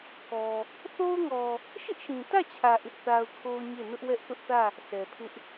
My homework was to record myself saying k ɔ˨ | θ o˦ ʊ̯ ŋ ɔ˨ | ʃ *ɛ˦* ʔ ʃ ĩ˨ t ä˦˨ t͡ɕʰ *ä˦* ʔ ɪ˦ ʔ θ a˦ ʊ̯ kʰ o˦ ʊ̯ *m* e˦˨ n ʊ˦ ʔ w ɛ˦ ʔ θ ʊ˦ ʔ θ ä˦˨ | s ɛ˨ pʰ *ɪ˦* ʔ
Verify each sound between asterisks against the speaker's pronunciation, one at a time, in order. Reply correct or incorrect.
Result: incorrect, incorrect, incorrect, correct

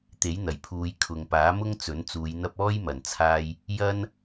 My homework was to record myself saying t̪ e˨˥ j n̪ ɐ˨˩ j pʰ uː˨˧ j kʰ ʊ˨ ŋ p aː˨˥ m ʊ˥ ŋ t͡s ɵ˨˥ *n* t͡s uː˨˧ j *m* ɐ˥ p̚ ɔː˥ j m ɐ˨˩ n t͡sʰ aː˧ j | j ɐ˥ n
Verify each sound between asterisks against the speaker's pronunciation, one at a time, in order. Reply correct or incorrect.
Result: correct, incorrect

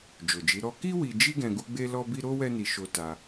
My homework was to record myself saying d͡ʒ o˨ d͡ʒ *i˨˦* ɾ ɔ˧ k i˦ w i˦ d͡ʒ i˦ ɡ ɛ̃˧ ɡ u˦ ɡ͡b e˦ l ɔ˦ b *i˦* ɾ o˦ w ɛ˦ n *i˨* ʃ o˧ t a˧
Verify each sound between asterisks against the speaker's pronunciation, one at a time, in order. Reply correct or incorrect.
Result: correct, correct, incorrect

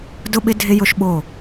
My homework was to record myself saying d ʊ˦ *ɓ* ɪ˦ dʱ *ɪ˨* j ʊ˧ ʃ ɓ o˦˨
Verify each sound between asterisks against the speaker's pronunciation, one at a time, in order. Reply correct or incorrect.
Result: correct, incorrect

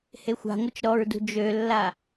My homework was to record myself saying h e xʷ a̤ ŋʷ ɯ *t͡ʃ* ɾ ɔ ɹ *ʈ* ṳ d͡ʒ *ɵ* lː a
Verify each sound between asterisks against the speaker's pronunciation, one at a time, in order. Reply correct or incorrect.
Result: correct, incorrect, incorrect

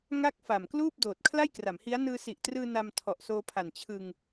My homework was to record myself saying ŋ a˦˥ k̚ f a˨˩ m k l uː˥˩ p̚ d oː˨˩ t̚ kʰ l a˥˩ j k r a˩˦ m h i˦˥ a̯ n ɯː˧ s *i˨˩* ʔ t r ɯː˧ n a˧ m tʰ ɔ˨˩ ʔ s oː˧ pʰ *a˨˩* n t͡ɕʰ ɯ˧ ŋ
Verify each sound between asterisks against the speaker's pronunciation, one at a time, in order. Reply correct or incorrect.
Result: correct, correct

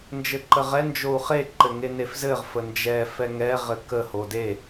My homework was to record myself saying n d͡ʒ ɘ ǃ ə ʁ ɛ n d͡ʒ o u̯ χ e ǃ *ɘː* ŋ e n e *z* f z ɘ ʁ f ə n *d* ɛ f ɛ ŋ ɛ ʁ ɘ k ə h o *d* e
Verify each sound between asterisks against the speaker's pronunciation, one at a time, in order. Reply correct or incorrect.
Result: incorrect, incorrect, incorrect, correct

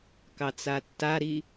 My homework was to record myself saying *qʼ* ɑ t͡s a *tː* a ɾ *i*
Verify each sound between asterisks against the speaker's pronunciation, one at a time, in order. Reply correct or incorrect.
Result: incorrect, correct, correct

